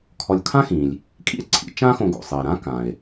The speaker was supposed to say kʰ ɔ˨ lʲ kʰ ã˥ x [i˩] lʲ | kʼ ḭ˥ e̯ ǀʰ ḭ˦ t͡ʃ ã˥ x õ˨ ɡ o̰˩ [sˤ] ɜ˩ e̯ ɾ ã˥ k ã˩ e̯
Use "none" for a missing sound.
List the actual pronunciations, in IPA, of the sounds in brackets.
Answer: ĩ˩, sˤ

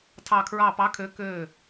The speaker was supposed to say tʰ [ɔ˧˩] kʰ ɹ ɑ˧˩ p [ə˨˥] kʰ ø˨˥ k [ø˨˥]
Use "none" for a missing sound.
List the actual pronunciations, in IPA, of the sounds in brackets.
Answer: ɑ˧˩, ɑ˨˥, ø˧˩

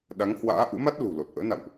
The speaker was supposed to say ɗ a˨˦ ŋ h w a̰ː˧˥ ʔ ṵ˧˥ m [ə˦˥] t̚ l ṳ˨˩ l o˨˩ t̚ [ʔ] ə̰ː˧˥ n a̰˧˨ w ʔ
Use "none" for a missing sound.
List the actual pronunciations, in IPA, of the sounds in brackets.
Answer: a˦˥, ʔ

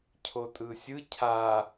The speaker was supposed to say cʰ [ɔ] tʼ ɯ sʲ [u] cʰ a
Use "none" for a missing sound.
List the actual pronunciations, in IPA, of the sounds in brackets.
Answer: o, ɯ

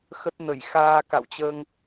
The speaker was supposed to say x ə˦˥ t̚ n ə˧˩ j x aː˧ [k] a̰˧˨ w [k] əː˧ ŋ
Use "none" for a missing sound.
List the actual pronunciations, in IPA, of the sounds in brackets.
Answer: k, t͡ɕ

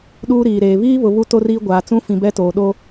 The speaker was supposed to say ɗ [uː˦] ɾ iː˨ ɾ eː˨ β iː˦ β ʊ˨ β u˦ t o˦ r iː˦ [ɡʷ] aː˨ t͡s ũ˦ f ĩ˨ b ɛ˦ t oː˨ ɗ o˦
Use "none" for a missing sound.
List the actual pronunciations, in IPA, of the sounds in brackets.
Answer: uː˦, ɡʷ

